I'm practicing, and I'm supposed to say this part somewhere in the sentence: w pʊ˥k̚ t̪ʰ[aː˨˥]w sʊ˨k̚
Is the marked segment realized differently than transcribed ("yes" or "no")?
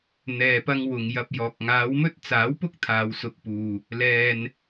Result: yes